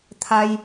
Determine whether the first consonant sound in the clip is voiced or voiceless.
voiceless